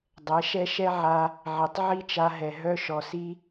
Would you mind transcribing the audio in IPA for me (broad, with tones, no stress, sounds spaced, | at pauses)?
dˤ ɛ˨˦ ʃ ɛ˦ ʃ ɛ˦ ʕ a˧ | ʕ i˨ tˤ ʕ i˦ t͡ʃ a˧ ɦ ɛ˨ ɦ œ˦ ʃ ɔ˨ s i˧